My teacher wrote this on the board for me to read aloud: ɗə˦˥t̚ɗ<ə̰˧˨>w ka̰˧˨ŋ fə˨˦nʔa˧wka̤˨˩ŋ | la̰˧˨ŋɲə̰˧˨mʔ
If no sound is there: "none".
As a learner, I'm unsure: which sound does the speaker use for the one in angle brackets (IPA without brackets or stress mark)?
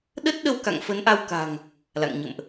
ə˧